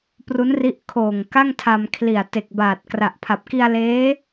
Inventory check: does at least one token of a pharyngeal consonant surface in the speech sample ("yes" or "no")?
no